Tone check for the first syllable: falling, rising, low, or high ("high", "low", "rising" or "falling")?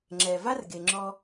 low